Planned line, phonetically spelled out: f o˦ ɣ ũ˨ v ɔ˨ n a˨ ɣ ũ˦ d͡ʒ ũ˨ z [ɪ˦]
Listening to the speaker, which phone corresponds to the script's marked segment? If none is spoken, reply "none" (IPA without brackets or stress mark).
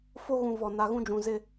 ɪ˦